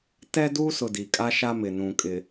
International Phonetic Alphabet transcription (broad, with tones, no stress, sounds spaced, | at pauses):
t ɛ˦ d uː˦ s ʊ˨ d i˨ kʼ a˦ ʃ a˦ m ɪ˨ n ũ˨ kʼ ɪ˨